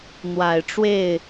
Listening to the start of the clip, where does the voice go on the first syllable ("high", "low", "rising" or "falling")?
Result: low